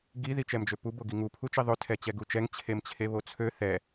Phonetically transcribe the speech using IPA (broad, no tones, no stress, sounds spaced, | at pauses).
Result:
ɡ i ð i t͡ʃ ɛ m d͡ʒ ø p u b o ɡ i ŋ u pʰ u t͡ʃ i ðˤ ø tʰ ɛ t͡ɕ ɛ ɡ u t͡ʃ ɛ ŋ t͡ɕʰ e m t͡ɕʰ e β o t͡sʰ ø θ ɛ